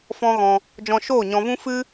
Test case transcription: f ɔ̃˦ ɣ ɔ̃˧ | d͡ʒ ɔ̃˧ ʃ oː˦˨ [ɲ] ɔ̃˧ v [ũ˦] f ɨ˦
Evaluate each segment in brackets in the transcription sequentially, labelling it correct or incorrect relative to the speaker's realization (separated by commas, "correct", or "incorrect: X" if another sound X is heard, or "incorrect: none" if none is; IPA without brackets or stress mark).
correct, correct